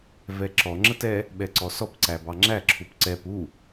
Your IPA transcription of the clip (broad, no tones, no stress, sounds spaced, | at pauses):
v ɛ ǁ ɔ ŋ͡ǁ ə t ɛ | ɓ ɛ ǀ ɔ s ɔ p ǀ æ b ɑ ŋ͡ǁ æ ǁʰ u p ǀ ɛ p u